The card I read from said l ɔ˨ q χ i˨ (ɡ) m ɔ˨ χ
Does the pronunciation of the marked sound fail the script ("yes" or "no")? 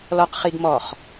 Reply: no